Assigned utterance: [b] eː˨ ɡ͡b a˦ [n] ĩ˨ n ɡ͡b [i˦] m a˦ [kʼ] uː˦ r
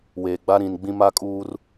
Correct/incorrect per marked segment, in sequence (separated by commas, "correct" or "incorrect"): incorrect, incorrect, incorrect, correct